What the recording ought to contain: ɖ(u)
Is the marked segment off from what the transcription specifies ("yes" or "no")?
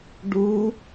no